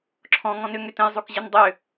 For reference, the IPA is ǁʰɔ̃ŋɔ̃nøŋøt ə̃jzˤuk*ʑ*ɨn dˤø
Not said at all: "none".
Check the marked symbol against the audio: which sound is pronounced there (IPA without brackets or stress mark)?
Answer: ʑ